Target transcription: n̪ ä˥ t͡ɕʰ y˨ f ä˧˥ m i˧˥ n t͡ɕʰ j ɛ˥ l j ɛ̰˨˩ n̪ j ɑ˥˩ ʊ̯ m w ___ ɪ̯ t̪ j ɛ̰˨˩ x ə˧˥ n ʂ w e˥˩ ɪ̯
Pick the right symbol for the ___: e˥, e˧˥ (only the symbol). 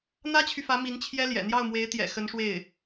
e˧˥